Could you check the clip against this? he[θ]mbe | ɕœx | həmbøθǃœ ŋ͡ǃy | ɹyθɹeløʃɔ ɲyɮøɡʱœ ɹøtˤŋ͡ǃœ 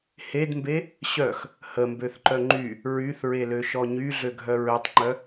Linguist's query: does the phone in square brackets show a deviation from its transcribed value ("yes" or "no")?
yes